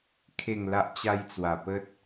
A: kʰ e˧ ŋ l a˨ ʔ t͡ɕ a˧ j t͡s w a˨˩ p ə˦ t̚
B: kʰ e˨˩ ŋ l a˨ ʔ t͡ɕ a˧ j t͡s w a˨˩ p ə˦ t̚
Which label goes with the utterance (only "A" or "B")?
B